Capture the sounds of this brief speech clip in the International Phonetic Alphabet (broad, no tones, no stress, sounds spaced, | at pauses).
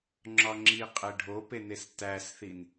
ŋ͡ǁ ɒ ŋ͡ǁ i qʼ e ɖʱ o p e n e s t æ s θ i n